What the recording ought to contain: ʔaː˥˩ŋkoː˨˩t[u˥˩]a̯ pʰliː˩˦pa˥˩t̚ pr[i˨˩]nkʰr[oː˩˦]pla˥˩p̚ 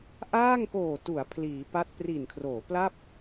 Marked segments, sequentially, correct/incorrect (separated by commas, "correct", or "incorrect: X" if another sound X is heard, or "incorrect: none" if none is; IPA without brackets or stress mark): incorrect: u˩˦, correct, correct